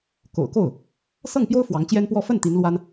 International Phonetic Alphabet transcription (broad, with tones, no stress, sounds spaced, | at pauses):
k o̰˨˩ ʊ̯ k o˥˩ ʊ̯ | s ɤ˥˩ ŋ p j o˥ ʊ̯ f w ɑ˧˥ ŋ t͡ɕ j ɛ˥ n p w ɔ˥˧ f ə˥˩ n t̪ i˧˥ n l w a˥ n